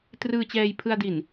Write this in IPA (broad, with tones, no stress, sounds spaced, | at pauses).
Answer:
t r ɯː˧ t͡ɕ ɛː˧ j pʰ ɯ˧ a̯ d i˨˩ n